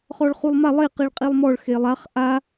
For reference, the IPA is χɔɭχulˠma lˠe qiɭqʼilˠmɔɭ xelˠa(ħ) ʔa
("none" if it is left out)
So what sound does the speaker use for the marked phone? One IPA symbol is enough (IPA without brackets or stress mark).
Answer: χ